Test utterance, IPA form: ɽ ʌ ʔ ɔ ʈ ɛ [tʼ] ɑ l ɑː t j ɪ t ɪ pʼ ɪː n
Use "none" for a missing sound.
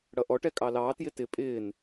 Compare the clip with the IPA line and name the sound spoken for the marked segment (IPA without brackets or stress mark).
kʼ